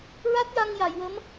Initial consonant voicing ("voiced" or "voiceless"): voiced